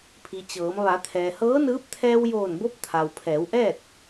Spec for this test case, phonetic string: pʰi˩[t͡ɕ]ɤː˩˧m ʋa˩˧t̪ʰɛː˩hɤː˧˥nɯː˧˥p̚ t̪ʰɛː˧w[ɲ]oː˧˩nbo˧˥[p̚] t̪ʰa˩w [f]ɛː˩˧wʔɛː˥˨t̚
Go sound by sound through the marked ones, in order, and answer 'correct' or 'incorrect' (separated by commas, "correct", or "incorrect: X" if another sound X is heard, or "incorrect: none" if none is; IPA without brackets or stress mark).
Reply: correct, incorrect: j, correct, incorrect: pʰ